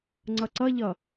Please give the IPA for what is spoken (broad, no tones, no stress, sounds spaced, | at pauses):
ŋ͡ǀ ʌ ǀ ʌ ʎ ʌ